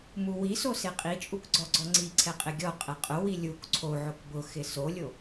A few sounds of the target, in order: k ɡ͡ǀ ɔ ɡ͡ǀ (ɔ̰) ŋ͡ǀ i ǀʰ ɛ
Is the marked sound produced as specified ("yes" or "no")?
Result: no